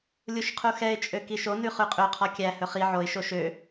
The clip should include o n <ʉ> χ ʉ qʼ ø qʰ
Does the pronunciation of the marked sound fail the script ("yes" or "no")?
no